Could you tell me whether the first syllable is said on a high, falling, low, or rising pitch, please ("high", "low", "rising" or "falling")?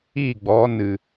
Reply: falling